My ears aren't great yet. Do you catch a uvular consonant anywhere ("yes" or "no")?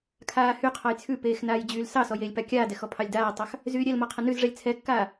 yes